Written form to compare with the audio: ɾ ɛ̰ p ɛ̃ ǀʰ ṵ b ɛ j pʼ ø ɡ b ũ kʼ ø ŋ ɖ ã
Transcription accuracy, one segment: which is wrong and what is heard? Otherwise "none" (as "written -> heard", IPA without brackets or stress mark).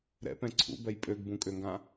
ɖ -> ɡ